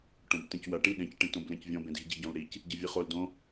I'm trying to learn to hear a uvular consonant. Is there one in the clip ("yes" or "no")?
yes